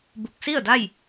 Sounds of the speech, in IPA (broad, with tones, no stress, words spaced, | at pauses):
bu˧˩k̚si˥˨ə̯ da˥˨j